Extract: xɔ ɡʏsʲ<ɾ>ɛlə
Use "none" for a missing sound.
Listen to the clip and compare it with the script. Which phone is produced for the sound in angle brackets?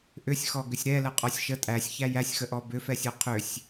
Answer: ɾ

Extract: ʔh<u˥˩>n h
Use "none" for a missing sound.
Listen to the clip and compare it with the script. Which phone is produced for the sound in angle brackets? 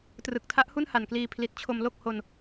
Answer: u˥˩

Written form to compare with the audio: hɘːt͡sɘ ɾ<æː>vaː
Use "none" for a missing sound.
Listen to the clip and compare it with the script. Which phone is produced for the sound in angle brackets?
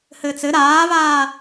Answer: aː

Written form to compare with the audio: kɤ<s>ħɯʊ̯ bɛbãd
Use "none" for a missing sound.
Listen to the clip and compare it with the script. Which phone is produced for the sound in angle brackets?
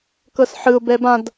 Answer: s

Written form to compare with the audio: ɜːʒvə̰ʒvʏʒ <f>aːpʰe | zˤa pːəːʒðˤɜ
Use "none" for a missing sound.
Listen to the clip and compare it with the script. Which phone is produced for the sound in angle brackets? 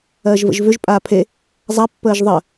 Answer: pʼ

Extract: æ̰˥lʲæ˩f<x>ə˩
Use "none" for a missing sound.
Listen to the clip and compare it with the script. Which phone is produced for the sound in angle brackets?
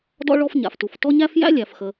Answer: x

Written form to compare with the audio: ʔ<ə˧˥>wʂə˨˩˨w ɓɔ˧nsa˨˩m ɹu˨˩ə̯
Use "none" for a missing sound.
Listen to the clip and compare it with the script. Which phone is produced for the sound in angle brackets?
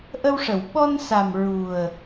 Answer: ə˧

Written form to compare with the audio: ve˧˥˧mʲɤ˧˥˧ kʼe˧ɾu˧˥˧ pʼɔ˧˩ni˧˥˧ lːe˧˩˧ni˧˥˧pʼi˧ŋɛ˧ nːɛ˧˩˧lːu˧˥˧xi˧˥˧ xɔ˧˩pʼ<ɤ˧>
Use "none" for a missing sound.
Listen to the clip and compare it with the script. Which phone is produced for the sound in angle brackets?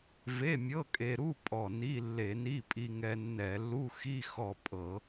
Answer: ɤ˧˩˧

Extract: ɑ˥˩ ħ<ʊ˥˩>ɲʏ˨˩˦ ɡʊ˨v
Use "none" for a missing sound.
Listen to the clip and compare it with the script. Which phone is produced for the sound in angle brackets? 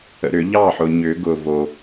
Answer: ʊ˨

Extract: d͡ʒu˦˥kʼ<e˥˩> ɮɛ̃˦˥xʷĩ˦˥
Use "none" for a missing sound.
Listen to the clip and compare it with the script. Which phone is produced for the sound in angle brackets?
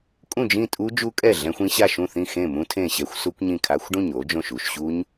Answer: ɛ˥˩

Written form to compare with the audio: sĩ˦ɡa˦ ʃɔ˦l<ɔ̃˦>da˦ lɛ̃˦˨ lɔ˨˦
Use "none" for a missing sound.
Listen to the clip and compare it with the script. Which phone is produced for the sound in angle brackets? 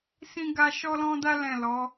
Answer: ɔ̃˦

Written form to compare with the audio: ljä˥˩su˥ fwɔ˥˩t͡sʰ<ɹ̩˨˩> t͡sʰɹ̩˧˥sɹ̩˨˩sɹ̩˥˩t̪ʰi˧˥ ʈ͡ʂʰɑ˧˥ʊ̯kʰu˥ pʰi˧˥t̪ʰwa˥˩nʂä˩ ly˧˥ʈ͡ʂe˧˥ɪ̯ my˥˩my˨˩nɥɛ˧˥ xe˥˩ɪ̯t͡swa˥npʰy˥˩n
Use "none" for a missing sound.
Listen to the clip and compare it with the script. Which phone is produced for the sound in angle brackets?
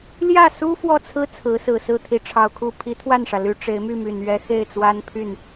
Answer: ɹ̩˥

